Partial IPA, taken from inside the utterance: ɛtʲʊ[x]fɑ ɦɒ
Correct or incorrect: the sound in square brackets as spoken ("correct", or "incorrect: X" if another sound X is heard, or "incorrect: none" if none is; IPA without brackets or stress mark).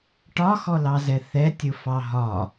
incorrect: none